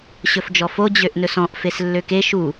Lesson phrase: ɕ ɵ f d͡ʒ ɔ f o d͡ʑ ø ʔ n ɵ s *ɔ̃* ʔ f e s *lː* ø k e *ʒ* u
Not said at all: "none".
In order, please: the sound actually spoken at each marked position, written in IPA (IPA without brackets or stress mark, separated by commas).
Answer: ɔ̃, lː, ʃ